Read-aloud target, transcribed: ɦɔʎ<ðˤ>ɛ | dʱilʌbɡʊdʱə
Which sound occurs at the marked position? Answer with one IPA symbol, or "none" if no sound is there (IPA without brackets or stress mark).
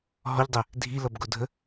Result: dˤ